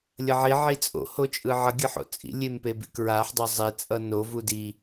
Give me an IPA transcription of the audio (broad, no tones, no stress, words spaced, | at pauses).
lʲʌʕi ʕit͡sʼo̰ hot͡ʃʼɯʕʌ ɡʲɯħo̰t͡sʼḭ lʲempebḭkɹaħ dˤozˤe t͡sʼʌno vudi